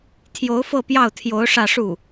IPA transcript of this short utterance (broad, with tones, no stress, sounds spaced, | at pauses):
t̪ʰ j o˧˥ ʊ̯ f ɤ˥˧ p j ɑ˥˩ ʊ̯ t̪ʰ j o˧˥ ʊ̯ ʂ ä˥˧ ʂ u˥˩